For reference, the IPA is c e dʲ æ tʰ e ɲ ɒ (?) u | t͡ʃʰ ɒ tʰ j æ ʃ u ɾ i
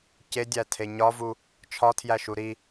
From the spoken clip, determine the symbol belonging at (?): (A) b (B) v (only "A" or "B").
B